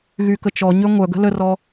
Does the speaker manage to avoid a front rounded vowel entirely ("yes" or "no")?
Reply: no